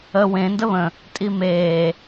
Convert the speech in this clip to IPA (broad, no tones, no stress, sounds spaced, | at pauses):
ə w ẽ n d ə β ə̃ | tʼ i m e